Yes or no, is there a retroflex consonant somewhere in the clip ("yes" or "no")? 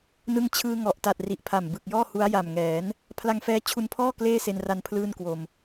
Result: no